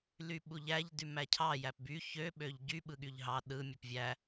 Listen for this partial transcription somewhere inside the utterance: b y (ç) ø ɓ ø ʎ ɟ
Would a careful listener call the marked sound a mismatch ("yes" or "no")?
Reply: no